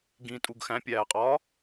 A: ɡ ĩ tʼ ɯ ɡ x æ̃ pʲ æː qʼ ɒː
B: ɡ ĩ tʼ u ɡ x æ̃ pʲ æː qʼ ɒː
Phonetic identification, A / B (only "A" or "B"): B